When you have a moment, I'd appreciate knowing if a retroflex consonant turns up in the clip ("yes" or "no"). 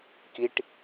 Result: yes